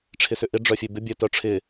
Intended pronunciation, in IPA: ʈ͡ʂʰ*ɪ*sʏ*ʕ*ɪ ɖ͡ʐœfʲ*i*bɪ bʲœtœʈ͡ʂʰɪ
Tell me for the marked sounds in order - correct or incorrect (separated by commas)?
correct, incorrect, incorrect